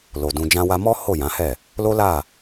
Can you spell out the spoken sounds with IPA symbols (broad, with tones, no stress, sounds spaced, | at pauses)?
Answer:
l o˨ d ũ˧ d͡ʒ ã˦ w a˦ m ɔ˦ h o˦˨ j ã˨˦ h ɛ˦˨ | l o˦ l a˦˨